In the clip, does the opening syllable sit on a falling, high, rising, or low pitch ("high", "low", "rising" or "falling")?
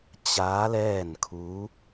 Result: rising